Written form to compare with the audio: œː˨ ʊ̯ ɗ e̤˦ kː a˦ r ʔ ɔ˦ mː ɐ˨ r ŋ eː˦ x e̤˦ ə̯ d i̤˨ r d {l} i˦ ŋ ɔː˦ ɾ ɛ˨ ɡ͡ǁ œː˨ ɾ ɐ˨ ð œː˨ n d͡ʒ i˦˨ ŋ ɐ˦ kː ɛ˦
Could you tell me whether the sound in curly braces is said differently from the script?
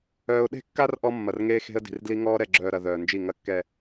no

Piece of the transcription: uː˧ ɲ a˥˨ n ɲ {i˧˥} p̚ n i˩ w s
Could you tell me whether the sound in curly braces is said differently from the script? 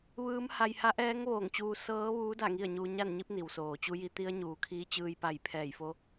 no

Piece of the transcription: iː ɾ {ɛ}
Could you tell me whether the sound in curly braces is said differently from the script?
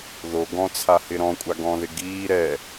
no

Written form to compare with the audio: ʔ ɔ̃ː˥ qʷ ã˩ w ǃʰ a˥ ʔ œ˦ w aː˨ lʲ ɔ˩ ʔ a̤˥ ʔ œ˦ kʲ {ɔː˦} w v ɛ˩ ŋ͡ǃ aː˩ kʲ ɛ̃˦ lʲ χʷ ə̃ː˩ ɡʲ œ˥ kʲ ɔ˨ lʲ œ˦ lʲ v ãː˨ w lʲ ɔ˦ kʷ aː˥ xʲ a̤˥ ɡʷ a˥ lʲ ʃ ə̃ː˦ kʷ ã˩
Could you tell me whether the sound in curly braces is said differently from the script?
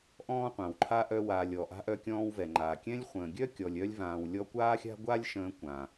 yes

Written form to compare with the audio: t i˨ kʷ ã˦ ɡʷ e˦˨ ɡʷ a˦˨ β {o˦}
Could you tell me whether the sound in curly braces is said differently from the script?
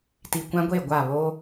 no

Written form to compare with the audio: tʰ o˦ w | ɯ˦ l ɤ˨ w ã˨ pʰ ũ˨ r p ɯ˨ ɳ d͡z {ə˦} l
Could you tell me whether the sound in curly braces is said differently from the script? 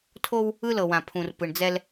yes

